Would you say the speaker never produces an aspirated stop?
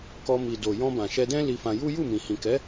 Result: yes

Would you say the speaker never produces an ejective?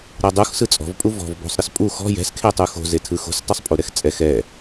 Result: no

